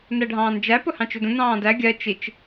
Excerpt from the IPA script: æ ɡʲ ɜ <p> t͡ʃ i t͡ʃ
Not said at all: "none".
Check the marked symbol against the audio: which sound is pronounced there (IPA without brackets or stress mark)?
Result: none